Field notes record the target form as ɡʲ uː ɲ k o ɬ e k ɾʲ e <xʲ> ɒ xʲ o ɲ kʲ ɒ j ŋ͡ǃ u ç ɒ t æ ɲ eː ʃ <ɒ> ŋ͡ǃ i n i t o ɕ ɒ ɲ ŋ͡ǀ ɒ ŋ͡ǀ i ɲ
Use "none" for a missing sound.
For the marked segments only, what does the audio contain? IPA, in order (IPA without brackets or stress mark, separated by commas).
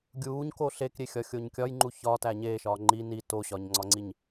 xʲ, ɒː